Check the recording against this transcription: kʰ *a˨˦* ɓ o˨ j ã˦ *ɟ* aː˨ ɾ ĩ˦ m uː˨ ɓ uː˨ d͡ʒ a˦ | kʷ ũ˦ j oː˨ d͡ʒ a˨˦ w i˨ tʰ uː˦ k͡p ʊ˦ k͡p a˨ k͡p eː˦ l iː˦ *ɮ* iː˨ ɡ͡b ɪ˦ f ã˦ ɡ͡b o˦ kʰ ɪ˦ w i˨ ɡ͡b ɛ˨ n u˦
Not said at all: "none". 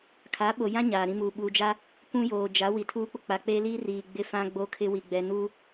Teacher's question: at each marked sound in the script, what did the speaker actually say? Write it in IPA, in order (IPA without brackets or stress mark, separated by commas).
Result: a˨˦, ɲ, r